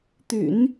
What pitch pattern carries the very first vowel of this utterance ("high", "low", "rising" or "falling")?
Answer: low